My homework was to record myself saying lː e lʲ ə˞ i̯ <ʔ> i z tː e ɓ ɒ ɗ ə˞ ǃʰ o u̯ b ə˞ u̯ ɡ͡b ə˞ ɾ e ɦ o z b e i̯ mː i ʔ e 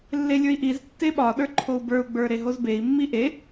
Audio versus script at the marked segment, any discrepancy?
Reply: no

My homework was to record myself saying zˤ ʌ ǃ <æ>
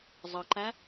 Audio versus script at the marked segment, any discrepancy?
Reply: no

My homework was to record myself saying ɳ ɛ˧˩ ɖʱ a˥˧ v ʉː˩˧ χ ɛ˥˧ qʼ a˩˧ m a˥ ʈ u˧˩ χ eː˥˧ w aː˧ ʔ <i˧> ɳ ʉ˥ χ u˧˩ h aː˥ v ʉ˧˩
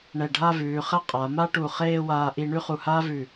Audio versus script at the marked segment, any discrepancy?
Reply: no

